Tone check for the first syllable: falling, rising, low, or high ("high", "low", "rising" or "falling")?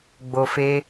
low